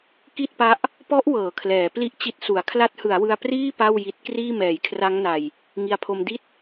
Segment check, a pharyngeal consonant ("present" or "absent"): absent